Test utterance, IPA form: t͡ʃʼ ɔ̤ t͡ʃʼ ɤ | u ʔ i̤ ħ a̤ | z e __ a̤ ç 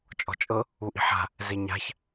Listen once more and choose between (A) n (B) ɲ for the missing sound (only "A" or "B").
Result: B